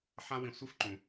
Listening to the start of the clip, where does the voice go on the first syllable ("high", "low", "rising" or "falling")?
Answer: high